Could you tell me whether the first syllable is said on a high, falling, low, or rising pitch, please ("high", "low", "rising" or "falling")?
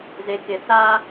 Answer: low